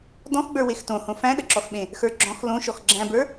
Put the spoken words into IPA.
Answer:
d ɔ̃ x ɡ͡b ə˞ w e x t õ h õ f æ̃ ɗ ə ǁ ɔ x ɓ ẽ | x ə˞ ɡ͡ǁ ɔ̃ x l õ ʃ ɔ x ɡ͡ǁ æ̃ b ə˞

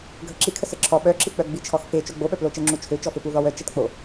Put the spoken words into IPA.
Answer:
ɡʱ ə ǁ i kʰ ə s ə ǁʰ ɔ ɓ œ ǁ i k͡p œ ɡ͡b i t͡ʃʰ ɔ x f e t͡ʃ o ɡ͡b o ɓ œ p l o t͡ʃ ɛ ŋ͡ǁ u t͡ʃʰ ø t͡ʃ ɔ f ø p u ð ɔ w œ t͡ʃ ɛ t k͡p o

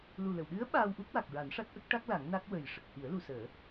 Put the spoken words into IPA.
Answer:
l u˨˩ l ə˨˩˨ w ɗ ɨ˧˥ ə̯ ɓ aː˧ w ʔ u˦˥ k̚ w a˨˩ k̚ ɹ a˨˩˦ n ʂ a˦˥ t̚ ʔ ə˦˥ k̚ ʈ a˦˥ k̚ l a˨˩˦ ŋ n a˦˥ k̚ w ə˨˩ j ʂ ə˨˩ k̚ h i˨˩˦ ə̯ l u˨˩˨ s əː˨˩˦

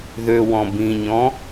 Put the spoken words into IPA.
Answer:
ð ø w ɔ̃ b ĩ ɲ ɔ̃

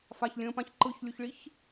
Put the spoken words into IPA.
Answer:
f a ç lʲ ə̃ː p ã ç ǃ ɯ ç lʲ u ç ɭ i ç

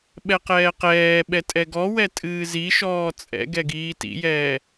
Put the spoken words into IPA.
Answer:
ɓ ɛ q ɛː q ɛː ɓ ɛ tʼ ɛ ɡ ɔ w ɛ tʼ ɨː z i ʃ ɔː t͡sʼ ɛ̰ ɡ ɛ ɡ iː t ḭ j ɛː

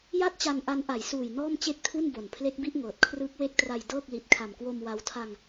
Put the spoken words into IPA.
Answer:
j a˥˩ t̚ t͡ɕ a˧ n ʔ a˦˥ n ʔ a˩˦ j s uː˨˩ j n ɔː˥˩ m t͡ɕ e˥˩ k̚ tʰ u˥˩ n b o˨˩ n pʰ l e˦˥ k̚ b i˥˩ ʔ ŋ ɤː˨˩ t̚ kʰ r ɯː˦˥ k̚ w e˦˥ k̚ t r a˧ j d ɤː˥˩ k̚ l i˨˩ t̚ kʰ a˨˩ m k w o˧ m w a˦˥ w tʰ a˧ ŋ

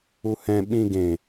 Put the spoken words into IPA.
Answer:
u h ɛ̃ ɓ ĩ ɡ ẽ

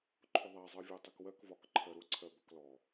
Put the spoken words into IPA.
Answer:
ǃʰ ʊ ðˤ æ zˤ ɜ vʲ æ tˤ i k w ɜ k v ɒ k ǃʰ ɜ ɾ ʊ ǀʰ ɜ b ɒ k l ɔ

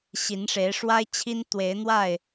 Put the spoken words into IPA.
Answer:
ɕ i˨˦ n ʂ e˨˦ ɪ̯ ʂ w a˦ ɪ̯ t͡ɕʰ i˦ n t̪ w e˨˦ ɪ̯ n̪ w a˥˨ ɪ̯

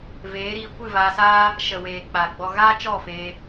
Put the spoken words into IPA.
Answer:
v eː˨˦ ɾ iː˧ kʷ ɨ˦˨ v aː˧ s aː˦ | ʃ ə˨ w eː˨ k͡p a˨ ɡ͡b ɔ˧ ɣ aː˦ t͡ʃ ɔ˦˨ f eː˧

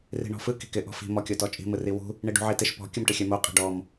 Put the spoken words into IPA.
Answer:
r i̤ ɳ ɔ̤ f ɯ k i̤ k ɪ ʔ ɔ̤ f i̤ m ɔ kʲ o t ɔ t͡ʃʼ i̤ m ɯ r i w ṳ | ɳ i ɖ ṳ ʕ i t ɪ ʃ p ɔ̤ kʲ ɯ m ʈ ɪ xʲ ɛ m o qʼ i̤ ɖ ɔ m

